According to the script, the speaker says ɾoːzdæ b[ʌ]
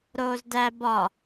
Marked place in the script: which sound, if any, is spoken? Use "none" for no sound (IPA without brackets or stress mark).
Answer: ɒ